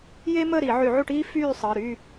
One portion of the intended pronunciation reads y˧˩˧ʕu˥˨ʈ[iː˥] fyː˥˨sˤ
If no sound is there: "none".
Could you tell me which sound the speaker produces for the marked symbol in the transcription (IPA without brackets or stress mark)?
iː˥